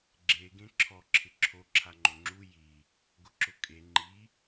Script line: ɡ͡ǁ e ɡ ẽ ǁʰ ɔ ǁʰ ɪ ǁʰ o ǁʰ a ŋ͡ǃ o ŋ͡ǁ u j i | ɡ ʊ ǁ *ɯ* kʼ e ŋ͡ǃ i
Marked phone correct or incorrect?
incorrect